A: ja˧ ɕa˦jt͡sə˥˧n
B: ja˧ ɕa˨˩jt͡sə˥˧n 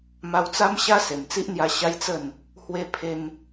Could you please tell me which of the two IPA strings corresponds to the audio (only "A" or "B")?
A